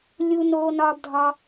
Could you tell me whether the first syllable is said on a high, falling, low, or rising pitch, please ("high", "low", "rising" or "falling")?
high